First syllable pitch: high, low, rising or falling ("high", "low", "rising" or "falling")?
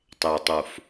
low